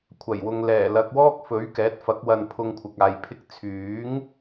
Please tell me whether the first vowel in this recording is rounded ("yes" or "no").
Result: no